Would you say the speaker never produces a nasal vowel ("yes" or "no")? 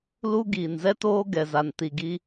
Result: yes